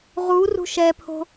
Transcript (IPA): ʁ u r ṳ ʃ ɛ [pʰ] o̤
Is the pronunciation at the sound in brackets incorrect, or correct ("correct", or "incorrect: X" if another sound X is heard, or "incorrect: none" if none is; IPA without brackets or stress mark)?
correct